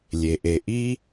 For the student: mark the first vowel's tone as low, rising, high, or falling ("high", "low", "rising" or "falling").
low